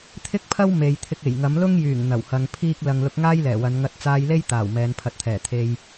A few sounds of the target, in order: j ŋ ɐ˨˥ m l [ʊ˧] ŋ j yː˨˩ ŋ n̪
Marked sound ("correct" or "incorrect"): incorrect